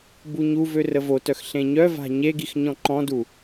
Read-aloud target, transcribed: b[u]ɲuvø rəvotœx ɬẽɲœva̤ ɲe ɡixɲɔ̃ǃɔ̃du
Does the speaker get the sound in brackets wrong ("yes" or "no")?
no